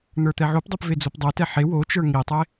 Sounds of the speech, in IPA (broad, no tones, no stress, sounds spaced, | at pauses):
n̪ ə˞ t̪ ɛ ʕ o p dˤ o p v e d͡z o p dˤ o t ɛ ħ e w o t͡ʃ ə˞ ŋ i tˤ e